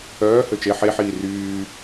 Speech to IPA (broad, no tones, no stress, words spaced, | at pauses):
œː høt͡ʃe ħeħiː ryː